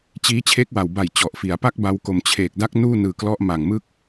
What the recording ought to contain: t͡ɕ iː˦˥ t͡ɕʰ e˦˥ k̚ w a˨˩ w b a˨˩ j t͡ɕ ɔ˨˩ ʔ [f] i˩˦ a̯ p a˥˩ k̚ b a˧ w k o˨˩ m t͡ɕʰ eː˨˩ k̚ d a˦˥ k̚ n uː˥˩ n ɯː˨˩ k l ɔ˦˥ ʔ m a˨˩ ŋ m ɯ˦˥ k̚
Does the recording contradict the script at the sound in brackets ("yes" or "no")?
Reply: no